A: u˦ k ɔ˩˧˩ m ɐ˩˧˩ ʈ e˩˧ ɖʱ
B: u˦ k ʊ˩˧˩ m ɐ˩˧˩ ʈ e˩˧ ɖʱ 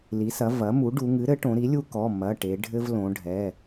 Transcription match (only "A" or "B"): A